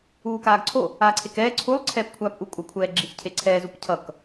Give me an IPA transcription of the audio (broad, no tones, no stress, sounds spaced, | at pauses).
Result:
uː k aː ɡ ǀʰ o | aː ǀʰ e k ɛː ǀʰ u lˠ ǀʰ ɛː p kʷʰ aː p ʔ u kʷʼ ʌ kʷʰ ɛː ɡ͡ǁ i ç cʰ e ǀʰ ɛː z u p cʰ ʌ k